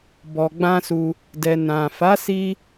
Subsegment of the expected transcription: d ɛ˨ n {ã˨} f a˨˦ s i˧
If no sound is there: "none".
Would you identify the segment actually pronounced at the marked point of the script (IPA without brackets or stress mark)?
ã˨